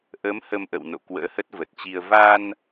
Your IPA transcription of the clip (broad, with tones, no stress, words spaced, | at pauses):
ʔə˨˦m hə˧mʔə̰˧˨w no̰˧˨ kwə̰ː˧˥hə˦˥t̚və˨˩t̚t͡ɕi˧ə̯ va˧n